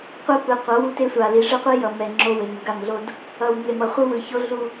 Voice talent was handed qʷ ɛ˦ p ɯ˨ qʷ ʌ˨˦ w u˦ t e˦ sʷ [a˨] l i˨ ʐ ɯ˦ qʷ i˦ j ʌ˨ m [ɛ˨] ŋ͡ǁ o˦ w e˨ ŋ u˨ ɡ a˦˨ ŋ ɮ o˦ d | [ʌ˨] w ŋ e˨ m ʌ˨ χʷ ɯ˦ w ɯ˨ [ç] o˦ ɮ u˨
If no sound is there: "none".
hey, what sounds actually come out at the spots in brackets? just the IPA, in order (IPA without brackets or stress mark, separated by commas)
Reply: a˨, ɛ˨, ʌ˨, ç